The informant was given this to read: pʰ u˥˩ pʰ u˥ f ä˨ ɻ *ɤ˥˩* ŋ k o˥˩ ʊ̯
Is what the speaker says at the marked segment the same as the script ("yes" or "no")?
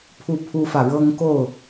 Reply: no